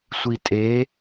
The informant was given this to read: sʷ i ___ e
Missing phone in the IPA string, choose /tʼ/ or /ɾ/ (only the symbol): tʼ